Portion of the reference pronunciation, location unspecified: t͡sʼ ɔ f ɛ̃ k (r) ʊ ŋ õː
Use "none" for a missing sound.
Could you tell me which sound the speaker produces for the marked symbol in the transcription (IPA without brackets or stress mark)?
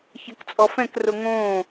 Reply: r